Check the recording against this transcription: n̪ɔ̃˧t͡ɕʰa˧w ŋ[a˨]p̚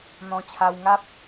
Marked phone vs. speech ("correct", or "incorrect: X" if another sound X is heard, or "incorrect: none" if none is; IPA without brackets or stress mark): incorrect: a˦